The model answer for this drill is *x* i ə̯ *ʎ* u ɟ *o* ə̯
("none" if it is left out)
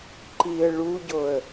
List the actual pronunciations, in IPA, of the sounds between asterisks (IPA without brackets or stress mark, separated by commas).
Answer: ǃ, ɭ, o